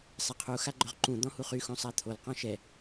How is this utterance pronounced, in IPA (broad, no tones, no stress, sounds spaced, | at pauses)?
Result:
sˤ e qʰ u x a ɡ͡ǃ œ ʁ ǃ ũ d̪ ɔ̃ h u χ y x õ sˤ a t̪ʰ o l q ɔ̃ ʃ ɛ